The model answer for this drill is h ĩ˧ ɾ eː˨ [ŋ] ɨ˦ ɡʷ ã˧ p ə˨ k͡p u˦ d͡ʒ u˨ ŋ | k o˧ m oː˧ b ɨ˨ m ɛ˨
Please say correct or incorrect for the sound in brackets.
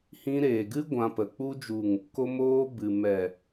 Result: incorrect